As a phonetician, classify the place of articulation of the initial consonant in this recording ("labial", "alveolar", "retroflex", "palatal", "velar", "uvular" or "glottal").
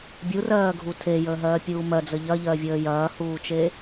labial